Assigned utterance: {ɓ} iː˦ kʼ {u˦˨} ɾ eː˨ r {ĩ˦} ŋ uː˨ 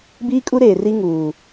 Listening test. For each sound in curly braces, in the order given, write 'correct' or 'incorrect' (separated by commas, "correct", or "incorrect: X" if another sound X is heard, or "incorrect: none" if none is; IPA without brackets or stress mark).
incorrect: b, incorrect: u˦, incorrect: i˦